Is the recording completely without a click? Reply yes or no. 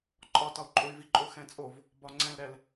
no